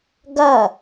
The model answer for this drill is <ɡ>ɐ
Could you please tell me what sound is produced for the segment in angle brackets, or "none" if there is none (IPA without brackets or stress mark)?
ɡ